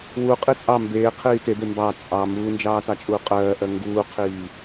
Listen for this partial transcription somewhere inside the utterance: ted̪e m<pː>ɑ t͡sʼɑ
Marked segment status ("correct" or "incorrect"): incorrect